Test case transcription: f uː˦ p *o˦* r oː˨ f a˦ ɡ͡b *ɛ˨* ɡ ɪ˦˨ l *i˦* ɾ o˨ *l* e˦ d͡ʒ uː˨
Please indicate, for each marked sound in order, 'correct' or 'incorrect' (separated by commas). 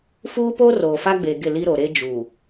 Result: correct, incorrect, correct, incorrect